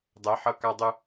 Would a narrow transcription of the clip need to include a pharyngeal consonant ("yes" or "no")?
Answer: yes